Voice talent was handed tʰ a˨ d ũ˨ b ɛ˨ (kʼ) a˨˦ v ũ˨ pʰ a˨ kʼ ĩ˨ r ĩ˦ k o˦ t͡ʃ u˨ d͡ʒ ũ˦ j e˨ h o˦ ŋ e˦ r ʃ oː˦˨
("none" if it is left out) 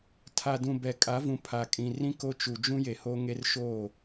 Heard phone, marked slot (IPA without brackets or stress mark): kʼ